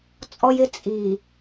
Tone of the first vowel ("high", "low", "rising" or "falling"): high